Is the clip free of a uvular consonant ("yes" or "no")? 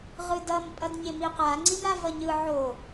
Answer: no